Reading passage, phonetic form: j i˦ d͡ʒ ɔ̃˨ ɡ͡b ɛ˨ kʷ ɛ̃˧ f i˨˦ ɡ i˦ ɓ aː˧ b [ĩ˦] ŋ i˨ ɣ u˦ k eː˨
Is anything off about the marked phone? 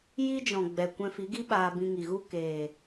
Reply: yes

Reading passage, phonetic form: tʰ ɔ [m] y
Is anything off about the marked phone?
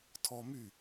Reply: no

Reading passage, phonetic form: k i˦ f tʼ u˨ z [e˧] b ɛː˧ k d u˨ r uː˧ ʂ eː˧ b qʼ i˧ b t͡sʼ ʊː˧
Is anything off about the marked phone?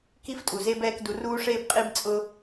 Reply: no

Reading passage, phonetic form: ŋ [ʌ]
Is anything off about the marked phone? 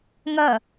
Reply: no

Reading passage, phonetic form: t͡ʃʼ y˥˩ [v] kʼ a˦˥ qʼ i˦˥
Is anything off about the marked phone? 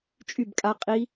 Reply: yes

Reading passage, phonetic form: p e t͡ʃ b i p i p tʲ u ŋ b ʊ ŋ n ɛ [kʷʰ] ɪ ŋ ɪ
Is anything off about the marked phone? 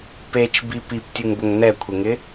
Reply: no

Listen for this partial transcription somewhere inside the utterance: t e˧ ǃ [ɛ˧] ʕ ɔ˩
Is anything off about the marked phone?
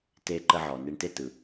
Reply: yes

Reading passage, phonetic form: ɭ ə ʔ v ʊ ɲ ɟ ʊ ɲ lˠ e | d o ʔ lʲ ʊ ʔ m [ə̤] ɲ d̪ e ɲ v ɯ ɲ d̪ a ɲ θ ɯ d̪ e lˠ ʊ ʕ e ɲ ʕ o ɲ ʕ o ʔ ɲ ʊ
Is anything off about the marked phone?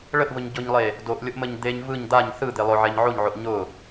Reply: yes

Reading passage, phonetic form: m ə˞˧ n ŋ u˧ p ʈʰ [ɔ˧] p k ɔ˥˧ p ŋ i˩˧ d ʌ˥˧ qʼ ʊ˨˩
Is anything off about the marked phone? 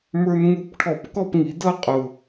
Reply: yes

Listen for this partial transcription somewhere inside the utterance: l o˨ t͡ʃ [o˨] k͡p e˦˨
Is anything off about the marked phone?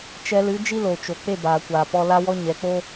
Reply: no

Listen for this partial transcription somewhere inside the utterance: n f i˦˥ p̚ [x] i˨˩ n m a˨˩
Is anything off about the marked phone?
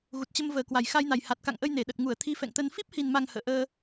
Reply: yes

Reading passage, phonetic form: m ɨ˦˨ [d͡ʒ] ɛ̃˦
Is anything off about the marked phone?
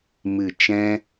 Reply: yes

